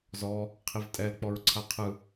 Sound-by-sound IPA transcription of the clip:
z ɔ | qʰ i v tʼ ɛ l k͡p ɔ ɹ ǀʰ a qʰ ɯ

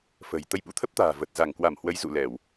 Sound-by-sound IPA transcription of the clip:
f ə̤˨˩ j t̪ ə˧ j ɓ ṵ˧˥ t̪ʰ ə˦˥ p̚ t̪ a̤ː˨˩ v ə˨˩ t̚ z a˧˩ ŋ k w a˧˩ m h w ə˨˦ j z ṵ˧˨ l ɛ˧˩˨ w

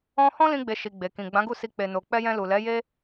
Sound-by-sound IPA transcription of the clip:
ɔ̃˦ h ɔ̃˦ l ĩ˧ ɡ͡b e˨ ʃ i˨ ɡ͡b e˨ k ĩ˨ ɡ͡b ã˨˦ ɡ u˦˨ s i˧ k͡p e˨ n o˨ k͡p ɛ˧ j ɛ̃˧ l u˨ l ɛ˨˦ j e˧

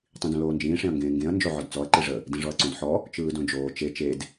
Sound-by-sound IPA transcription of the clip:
tˤ ĩ d õ l oː n d͡ʒ ĩː ʂ ẽ ɐ̯ ŋ ɡ ẽː ŋ ɡ ẽ ɐ̯ n d͡ʒ o ʕ ɔ d t͡s ɔ ɐ̯ ǃ i ʐ ə | d ĩ ʐ ɔ ɐ̯ ǀ õ d ħ ɔ | t͡ʃ ɯː d õ d͡ʒ oː t͡ʃ e t͡ʃ e d

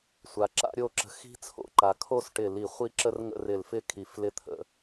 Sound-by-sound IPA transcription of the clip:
sʷ a˩˧ ǁ a̰˥ ɾʲ o˥˧ ǁ ə̤˧ x i̤˥ t͡sʰ o̰˧ ǃ a˩˧ kʰ o˥˧ s ʈ ɪ˧˩ l i˧˩ χʷ i˥ ǁ ə˥ r ŋ ə̰˥˧ r ɪ˧˩ l f ɪ˥˧ kʰ i˧˩ f l ɪ˥˧ t̪ʰ ə̰˩˧

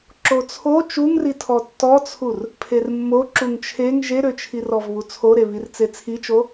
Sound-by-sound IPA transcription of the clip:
ǁ o t͡sʰ o t͡ʃ u ŋ r i tʰ ɔ tː ɔ t͡sʰ u r | pʰ e r mː o ǁ u ŋ t͡ʃʰ e ŋ ʒ e ɾ ø t͡ʃʰ i r ɔ v β u t͡sʰ o ɾ e β i r t͡s e t͡sʰ i t͡ʃ o

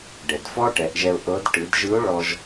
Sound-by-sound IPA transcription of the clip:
ɖ ɛ˩ d f ɔ˥ ʈ ɛ˩˧ ʔ ʒ ɛ˧ ʊ̯ ʔ ɤ˧˥ d ʈ ɯ˩˧ d ʒ ɯ˧˥ ʊ̯ ɭ ɔ˧ ʒ

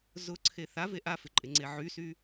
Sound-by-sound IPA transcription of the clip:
z ʊ ǀʰ e θ a v e ʔ a f ɪ ǃʼ ɪ ŋ͡ǀ e ʕ y s y

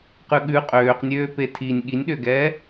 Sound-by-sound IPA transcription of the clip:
q ʉ ɠ ʉ qʼ øː q nʲ øː p e tʰ i nʲ ɠ i nʲ ɗ ø ɡ ɛː

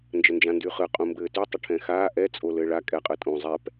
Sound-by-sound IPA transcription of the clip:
n d͡ʒ ə n d͡ʒ ã n d y χ ɯ qʼ ũ m b ɘː t y tˤ ə ʈʰ ɛ̃ x aː ʔ ɛ t͡sʼ o l ɘː ɭ a kʼ ɛ qʼ ɯ tʼ ũ zˤ ɛ p

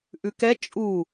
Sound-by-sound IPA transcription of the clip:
ʔ ʉ k ɛ t͡ʃʼ u

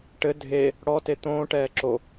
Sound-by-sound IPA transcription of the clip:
ʈ ɘ dʱ e | ɽ ɔ t e t̪ õː ʈ ɛː ǁ o

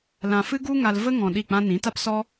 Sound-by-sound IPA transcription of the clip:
l ã˧ f ɨ˦ ɡ u˦ ŋ a˧ l v ə˦ ŋ ɔ̃˧ ɗ i˦˨ k͡p ã˦ n ĩ˨˦ t a˦ p s ɔ˦

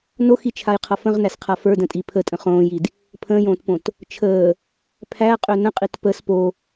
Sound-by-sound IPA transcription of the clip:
n o x i t͡ʃʰ a j qʰ ʌ f ə̃ ʁ n æ s qʰ a f ə˞ d ə̃ tʼ i pʰ ə tʼ ə̃ χ õː j i d | pʰ ə̃ː j õː t p õ t | t͡ʃʰ əː | pʰ æ qʼ ø n ə̃ qʼ i t p ə s p o

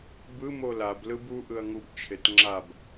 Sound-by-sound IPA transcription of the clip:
b ɯ m o l a b l ɯ b u ʔ ɯ ɐ̯ ŋ u b t͡ʃʰ e t ŋ͡ǁ a b

